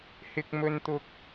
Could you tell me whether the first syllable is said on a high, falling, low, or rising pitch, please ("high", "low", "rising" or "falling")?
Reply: low